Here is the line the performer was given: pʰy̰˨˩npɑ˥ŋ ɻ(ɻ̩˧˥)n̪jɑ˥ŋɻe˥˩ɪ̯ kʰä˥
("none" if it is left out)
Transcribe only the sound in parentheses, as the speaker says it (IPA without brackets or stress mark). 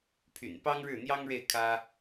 ɻ̩˥˩